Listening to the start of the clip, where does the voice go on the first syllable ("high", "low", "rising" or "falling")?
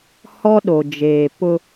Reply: high